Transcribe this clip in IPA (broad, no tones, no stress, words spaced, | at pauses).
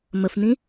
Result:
məfnĩ